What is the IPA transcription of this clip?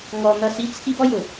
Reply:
ŋɔ˧n̪ʌ˦˨si˦ t͡sʰi˦bɔ˦jʊ˨

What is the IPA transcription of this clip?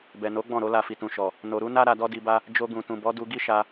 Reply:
bɛ˨no˨˦ ɡ͡bɔ̃˦˨ɾo˨˦la˧ fi˨tũ˨ʃɔ˨ | no˨ɾu˨˦na˦ ɾa˧dɔ˦di˧ba˦ | d͡ʒo˧ɡũ˨tũ˨bɔ˨˦ du˧ɡi˦ʃa˧

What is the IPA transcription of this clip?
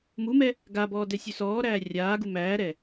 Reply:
mumɛ | ɡabɔːdɛ sʲʉsɔːɾæː rʲaːɡu mæːɾɛ

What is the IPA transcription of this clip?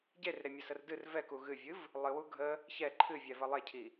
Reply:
ɟerɾemʲəsər dɨr vɛku ɣɨvʲɨv | lˠɨwu ɡʱə | çɛ ǃʰɨvʲɛvə lˠecʰi

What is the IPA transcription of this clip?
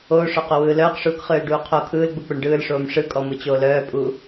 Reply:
oːʂœqowɯː lœːqʂuːkχɯːlɖuː qʰo kʰɯːlɡ͡buk͡poɳ ɖɯːlʂoːm ʂɯkʼɔmɯt͡ɕoːl œːpʼu

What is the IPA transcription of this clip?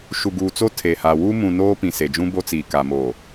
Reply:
ʃu˨ɡuː˨t͡so˦ tʰe˨ha˨ wu˦ mũ˨noː˦ pĩ˨se˨d͡ʒũ˦ bo˦t͡siː˨ ka˨moː˨

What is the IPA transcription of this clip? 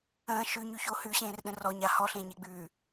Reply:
ə̃ː ʃʉɲʉçoː hʉɕẽːrɗə̃ rɔɲa hɔɬẽːɲeɡ͡bʉː

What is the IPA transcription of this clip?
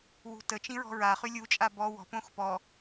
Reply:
wṳtət͡ʃĩ ɹɔ̤ɹa χylʲut͡ʃʼa bɔ wɔ̤ põxpɔ

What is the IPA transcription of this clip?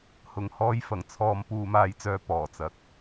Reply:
hʊ˨ŋ hɔː˧jfɐ˨˩ŋ t͡sʰɔː˨m puː˨maː˨jt͡sœː˨ pɔː˨˩t͡sɐ˨k̚

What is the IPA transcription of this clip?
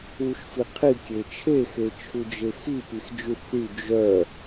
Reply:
uʃfi qʰikʲe t͡ʃʰexet͡ʃʰud͡ʒe xipixd͡ʒy θy d͡ʒœ

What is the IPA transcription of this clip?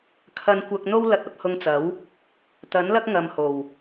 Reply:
kʰɐ˧nkʷɐ˧k̚n̪o˥w lɐ˧t̚ɐ˧p̚hʊ˧ŋt͡sɐ˨˥w | t̪ɐ˨˥nlɐ˥k̚ ŋɐ˧mho˨˩w

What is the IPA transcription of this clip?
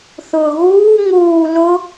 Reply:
θʊːɣuː ŋuː lʊ

